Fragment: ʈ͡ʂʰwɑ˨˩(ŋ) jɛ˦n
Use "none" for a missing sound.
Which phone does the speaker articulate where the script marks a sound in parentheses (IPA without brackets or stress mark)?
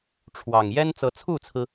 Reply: ŋ